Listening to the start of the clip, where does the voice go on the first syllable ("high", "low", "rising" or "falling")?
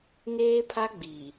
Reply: high